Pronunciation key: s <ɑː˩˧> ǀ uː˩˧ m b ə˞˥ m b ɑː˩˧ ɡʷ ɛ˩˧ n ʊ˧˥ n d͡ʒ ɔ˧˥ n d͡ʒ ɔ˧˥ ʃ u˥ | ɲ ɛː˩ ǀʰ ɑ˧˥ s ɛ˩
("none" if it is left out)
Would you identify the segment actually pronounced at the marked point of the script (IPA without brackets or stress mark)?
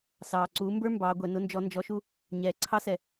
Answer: ɑː˩